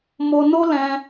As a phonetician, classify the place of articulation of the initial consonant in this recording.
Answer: labial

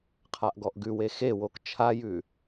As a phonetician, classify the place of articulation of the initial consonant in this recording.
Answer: uvular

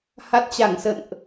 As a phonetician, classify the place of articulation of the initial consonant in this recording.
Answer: glottal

